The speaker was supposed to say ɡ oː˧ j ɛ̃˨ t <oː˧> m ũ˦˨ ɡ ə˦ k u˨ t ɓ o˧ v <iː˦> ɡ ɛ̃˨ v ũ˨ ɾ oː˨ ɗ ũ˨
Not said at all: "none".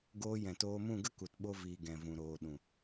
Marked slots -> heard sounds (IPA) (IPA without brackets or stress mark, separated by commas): oː˧, iː˨